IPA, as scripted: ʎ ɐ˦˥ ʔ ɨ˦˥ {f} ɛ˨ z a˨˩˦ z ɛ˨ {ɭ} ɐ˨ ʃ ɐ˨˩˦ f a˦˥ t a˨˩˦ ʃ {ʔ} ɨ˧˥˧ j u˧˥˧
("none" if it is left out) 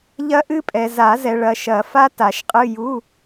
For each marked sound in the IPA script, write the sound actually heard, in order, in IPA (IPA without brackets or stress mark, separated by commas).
pʼ, ɭ, qʼ